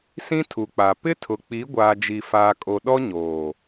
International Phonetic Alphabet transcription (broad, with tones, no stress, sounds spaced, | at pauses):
s ĩ˦ tʰ u˨ k͡p a˨ p ɪ˦ tʰ ʊ˨ k͡p i˨˦ ɡʷ aː˨ d͡ʒ i˨ f aː˨ kʼ o˨ ɗ ɔ˦ ɲ oː˨